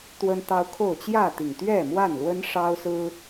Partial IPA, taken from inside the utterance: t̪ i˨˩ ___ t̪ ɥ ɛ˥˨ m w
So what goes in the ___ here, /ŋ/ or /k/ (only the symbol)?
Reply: ŋ